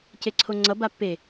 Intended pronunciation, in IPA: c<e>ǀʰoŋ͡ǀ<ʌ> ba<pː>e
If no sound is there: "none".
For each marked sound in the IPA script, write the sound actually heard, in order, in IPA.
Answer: e, ʌ, pː

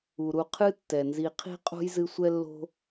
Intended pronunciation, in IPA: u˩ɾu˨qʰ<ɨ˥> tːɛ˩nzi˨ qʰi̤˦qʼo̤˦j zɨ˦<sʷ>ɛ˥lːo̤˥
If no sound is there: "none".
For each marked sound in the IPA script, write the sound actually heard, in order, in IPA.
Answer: ɨ˥, sʷ

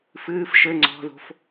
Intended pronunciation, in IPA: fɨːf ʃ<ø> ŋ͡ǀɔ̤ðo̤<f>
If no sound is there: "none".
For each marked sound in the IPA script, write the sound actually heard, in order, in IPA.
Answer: ɘ, f

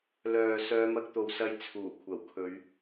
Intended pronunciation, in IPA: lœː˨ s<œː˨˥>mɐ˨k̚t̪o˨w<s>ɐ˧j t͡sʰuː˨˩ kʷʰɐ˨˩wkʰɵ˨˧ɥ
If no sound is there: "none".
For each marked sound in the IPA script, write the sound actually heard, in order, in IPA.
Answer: œː˨˧, s

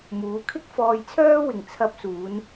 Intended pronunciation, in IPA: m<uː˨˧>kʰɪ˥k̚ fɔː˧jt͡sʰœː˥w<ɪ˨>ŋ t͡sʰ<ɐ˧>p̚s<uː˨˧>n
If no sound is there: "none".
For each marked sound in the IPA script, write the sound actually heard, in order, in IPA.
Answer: uː˨˧, ɪ˨, ɐ˧, uː˨˧

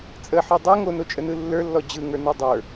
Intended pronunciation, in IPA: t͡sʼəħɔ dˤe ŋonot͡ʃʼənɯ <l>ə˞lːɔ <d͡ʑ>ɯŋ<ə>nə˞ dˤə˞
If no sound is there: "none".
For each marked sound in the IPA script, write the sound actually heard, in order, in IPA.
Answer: lː, d͡ʑ, ə˞

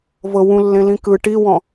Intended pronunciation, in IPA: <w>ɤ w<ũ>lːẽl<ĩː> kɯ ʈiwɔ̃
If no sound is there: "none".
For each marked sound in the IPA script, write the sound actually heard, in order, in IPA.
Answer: v, ũ, ĩ

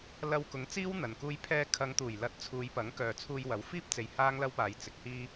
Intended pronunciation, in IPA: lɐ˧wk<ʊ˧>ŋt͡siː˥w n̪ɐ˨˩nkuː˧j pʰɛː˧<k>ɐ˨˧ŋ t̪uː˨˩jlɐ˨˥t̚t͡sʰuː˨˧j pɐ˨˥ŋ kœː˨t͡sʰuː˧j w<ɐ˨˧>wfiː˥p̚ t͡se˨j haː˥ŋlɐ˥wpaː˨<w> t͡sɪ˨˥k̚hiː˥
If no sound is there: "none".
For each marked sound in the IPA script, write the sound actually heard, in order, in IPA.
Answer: ʊ˨˥, kʰ, ɐ˨˥, j

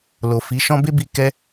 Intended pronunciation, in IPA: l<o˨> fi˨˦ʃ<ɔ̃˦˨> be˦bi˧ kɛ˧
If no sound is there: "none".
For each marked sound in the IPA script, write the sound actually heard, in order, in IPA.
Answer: o˨, ɔ̃˦

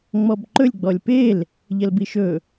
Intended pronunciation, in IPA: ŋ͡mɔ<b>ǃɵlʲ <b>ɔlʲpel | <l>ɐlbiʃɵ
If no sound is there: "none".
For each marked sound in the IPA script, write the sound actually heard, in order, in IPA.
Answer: b, ɡ͡b, ʎ

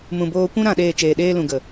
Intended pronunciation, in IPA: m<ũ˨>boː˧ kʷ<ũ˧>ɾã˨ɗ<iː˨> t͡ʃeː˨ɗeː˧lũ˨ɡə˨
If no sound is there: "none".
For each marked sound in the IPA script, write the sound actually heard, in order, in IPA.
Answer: ũ˨, ũ˧, eː˨

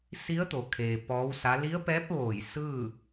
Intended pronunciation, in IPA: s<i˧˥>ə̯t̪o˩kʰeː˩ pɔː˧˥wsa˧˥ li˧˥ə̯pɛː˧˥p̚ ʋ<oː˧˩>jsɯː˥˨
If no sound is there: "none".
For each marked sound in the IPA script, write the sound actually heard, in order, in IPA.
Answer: i˧˥, oː˧˩

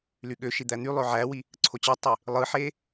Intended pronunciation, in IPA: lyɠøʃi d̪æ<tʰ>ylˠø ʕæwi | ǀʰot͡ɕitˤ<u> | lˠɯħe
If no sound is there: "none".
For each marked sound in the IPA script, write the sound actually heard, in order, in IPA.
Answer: n̪, ø

